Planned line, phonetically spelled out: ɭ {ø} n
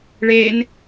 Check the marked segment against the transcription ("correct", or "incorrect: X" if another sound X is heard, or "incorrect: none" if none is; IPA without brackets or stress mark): incorrect: e